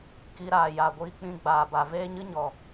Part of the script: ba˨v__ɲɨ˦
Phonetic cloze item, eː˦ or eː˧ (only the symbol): eː˦